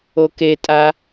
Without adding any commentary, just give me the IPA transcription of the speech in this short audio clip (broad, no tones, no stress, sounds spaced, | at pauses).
o k e tʼ a